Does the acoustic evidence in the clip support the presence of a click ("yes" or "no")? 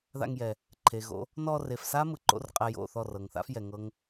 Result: yes